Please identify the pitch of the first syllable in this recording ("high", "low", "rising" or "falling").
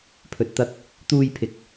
low